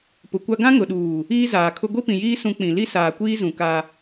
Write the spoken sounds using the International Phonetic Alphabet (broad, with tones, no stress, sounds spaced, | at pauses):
p ʊ˨ kʷ a˦ ɡ ã˦ ŋ ʊ˨ ɗ uː˨ | iː˦ z aː˨ kʰ ʊ˦ ɡʷ i˦ p ĩ˨ j iː˦ s ũ˦ k͡p ĩ˨ l i˦ s aː˨ kʷ iː˦ z ũ˨ k a˦